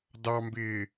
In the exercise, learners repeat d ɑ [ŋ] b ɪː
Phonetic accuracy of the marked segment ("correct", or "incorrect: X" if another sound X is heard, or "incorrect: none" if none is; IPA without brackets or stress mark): incorrect: m